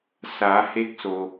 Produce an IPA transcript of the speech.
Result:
s a˩˧ h e˧˥ k̚ s o˩

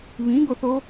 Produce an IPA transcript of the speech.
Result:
β ĩ ɡ o θ o

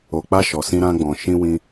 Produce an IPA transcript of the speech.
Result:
o˨ k͡p a˧ ʃ ɔ˨ s ĩ˧ ɾ ã˧ ɡ͡b ɔ̃˨ ʃ ĩ˧ w ĩ˧

